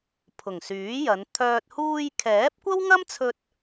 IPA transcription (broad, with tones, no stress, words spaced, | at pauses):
pʰʊ˨˩ŋsyː˨˥jɐ˨˧n t̪ʰœː˧t̚ huː˧jkʰɛː˨˥p̚ kʷɐ˥wŋɐ˥mt͡sʰɵ˧t̚